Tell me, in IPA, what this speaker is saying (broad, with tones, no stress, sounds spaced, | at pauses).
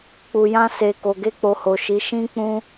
k͡p u˨ j ã˧ s e˨ k o˨ ɡ e˧ k͡p o˨ h o˨ ʃ i˨˦ ʃ ĩ˦ k͡p ũ˦